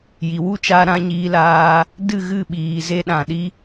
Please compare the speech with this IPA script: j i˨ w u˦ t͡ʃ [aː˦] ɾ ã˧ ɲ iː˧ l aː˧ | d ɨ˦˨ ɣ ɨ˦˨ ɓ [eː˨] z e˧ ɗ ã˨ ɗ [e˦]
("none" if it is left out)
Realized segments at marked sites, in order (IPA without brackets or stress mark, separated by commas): aː˧, iː˨, i˦